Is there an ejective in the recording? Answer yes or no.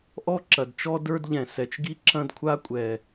yes